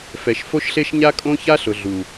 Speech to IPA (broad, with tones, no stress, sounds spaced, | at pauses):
f ɛ˨ ʃ f o˦ ʃ ɬ e˦ ʃ ɲ a˦ kʼ õ˦ ç a˦ ɬ ʊ˨ ɮ u˨